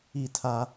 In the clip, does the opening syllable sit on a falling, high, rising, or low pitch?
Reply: falling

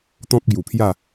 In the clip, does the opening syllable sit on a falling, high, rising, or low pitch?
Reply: high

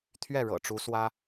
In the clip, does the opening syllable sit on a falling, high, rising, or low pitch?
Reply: falling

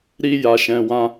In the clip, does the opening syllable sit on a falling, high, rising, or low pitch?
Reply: high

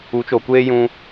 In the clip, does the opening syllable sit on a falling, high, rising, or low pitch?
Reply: rising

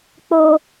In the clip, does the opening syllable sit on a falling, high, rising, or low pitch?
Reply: high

